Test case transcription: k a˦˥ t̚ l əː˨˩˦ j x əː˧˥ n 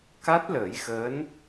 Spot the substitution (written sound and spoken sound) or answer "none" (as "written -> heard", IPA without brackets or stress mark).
none